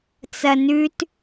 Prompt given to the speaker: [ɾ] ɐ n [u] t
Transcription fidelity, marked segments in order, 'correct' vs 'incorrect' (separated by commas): incorrect, incorrect